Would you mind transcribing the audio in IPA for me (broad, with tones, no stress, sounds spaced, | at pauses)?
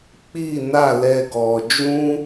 k͡p i˦˨ n a˦˨ l ɛ˧ ɡ ɔ˨ d͡ʒ ũ˦